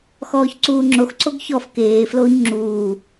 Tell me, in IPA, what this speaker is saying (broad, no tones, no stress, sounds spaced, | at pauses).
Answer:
x ɔː ç ǀ uː ŋ͡ǁ o x ǀ o ɡ ç ɔ f k eː f l oː ɲ ŋ͡ǁ uː